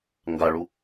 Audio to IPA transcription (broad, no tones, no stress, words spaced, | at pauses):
ŋɡaɭu